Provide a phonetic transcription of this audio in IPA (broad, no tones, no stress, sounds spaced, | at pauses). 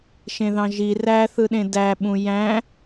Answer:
ʃ ẽ ð ɑ̃ ʒ i r æ θ ɯ ɗ ẽ d æ ɓ ũ j æ̃